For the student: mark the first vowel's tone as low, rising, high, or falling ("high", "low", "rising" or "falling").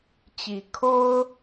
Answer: rising